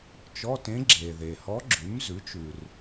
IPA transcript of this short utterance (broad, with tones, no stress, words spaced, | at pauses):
t͡ʃɔ˧˥˧tẽ˧˥ ɡ͡ǁe˨ðe˨ hɔ˧˥ɡ͡ǁʉ˩˥m zʉ˩˥t͡ʃʉ˨r